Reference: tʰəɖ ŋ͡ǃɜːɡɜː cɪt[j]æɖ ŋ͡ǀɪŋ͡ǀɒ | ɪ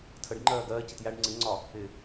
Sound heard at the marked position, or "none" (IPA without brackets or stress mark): j